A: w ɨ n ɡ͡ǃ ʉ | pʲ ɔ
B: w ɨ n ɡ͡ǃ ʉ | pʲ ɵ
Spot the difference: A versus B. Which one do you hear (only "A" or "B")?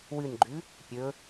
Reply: B